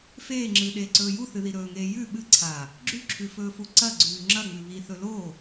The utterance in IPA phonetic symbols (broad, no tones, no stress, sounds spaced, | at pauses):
f eː ŋ͡ǁ ɨː ɗ eː ǀ ɵː j u θ ɨ ð i ɾ ɵː ŋ eː j ʉ ɓ ɨ ǀʰ a | ɡ͡ǁ ʉ ǁʰ ʉ f ɵː f u ǀ ɐ ɡ͡ǀ ʉː ŋ͡ǁ ɐ ŋ͡m ʉ β i θ ɵ l o